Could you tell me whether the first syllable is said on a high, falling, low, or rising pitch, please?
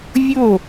falling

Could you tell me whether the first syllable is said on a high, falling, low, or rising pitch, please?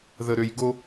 low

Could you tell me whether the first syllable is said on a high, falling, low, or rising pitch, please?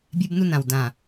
high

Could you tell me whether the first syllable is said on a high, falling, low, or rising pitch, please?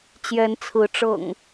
rising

